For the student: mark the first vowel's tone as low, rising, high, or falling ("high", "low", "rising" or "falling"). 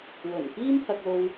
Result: low